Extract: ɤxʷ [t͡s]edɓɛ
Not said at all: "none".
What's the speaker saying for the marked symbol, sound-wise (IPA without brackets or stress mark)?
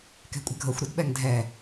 ɾ